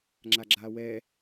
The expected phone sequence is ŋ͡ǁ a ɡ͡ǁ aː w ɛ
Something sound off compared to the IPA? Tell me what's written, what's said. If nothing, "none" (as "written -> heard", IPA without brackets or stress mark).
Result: none